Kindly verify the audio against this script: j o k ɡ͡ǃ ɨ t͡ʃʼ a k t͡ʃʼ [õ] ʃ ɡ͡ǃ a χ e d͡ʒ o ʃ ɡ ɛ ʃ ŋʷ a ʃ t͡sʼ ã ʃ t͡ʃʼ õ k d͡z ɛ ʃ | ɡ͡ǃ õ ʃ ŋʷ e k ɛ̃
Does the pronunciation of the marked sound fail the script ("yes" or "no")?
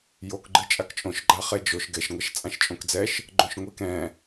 no